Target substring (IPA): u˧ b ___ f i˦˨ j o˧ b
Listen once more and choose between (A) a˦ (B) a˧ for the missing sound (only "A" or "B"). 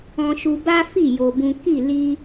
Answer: A